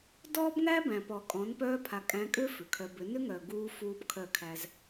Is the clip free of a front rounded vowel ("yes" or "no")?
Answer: no